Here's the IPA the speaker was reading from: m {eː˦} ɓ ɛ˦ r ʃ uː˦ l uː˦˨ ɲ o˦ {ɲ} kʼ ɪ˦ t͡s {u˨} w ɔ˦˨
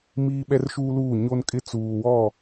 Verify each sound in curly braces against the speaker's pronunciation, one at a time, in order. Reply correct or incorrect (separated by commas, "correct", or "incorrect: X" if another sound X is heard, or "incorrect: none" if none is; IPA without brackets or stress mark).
incorrect: iː˦, incorrect: n, incorrect: uː˨